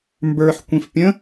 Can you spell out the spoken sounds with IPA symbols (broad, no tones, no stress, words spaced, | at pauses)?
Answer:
mbə˞ħ kʷĩfpʲə̃